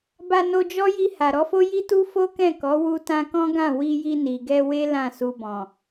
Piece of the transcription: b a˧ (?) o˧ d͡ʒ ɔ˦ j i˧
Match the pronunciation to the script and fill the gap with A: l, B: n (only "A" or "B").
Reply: B